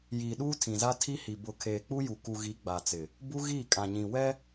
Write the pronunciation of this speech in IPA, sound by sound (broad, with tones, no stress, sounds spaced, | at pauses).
j iː˨ ɗ uː˦ tʰ ĩ˨ z a˦ tʰ i˦ h i˨ b ʊ˨ kʰ eː˨ k͡p u˦ j u˨ k u˨ ɣ i˨˦ ɡ͡b a˨ t͡s ɪ˨ | b u˦ ɣ iː˦˨ kʼ ã˨ ɲ ĩ˨ w ɛ˦